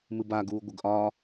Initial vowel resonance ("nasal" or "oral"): oral